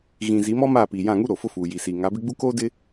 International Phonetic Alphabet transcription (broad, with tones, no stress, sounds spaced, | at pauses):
ɣ ĩ˨ z i˨˦ m ɔ˦ m aː˦˨ p iː˨ j ã˦˨ ŋ u˦ ɾ o˨ f ʊ˦ f uː˨ j i˨ s iː˨ ŋ a˨˦ b ɪ˦ ɡ͡b u˦ k oː˦ d ɪ˦